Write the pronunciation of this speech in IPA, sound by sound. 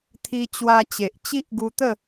t̪ʰ i˧ t͡ɕ w a˧ t͡ɕ e˨ ʔ t͡ɕ i˦ ʔ ɡ u˧ t̪ ə˥˧

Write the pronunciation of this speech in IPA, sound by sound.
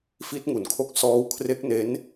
f i˦˥ t̚ ŋ u˩˦ n kʰ o˦˥ k̚ s ɔː˦˥ w kʰ r e˦˥ k̚ n e˦˥ n

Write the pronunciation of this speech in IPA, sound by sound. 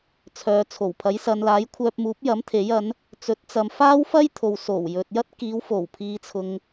t͡sʰ œː˨ t͡sʰ o˨˩ w pʰ ɐ˨˥ j s ɐ˨˧ n l aː˨˥ j kʷʰ œː˧ p̚ m uː˨˥ p̚ j ɐ˨˥ m t̪ʰ e˨˥ j ɐ˨˥ n | t͡s ɵ˨˥ t̚ t͡s ɐ˨ m f aː˥ w f ɐ˥ j t̪ʰ o˨ w s o˨˩ w j ɵ˨ t̚ j ɐ˥ t̚ k iː˨˧ w f o˨˩ w pʰ iː˨ t͡sʰ ʊ˨ ŋ

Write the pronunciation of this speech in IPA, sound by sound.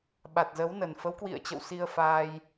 ɓ a˨˩ t̚ z ə˨˦ w n ə˨˩ n f ə˨˦ w k w ḭ˧˨ ə̯ t͡ɕ ə̰˧˨ w s i˧ ə̯ f aː˧ j

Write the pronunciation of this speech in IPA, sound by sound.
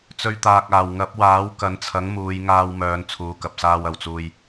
t͡s ɵ˧ ɥ t̪ aː˨ k̚ aː˨˩ w ŋ ɐ˨˥ p̚ w aː˨˥ w k ɐ˨˧ n t͡sʰ ɐ˨˥ ŋ m uː˨˧ j ŋ aː˧ w m œː˨˧ n t͡sʰ uː˨˧ k ɐ˨ p̚ s aː˧ w ɐ˨˩ w t͡s uː˨ j

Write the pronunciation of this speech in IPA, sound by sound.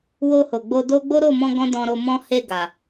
w o˧ h o˨ ɡ͡b o˧ d o˦ ɡ͡b o˦ ɾ o˦˨ m ɔ̃˧ ɡ ɔ̃˦ d ɔ̃˧ ɾ o˧ m ɔ̃˦ h e˦˨ ɡ a˨

